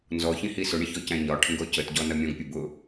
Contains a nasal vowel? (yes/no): yes